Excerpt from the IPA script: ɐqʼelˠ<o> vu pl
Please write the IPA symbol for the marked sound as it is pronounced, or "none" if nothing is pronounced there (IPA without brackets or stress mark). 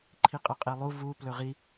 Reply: u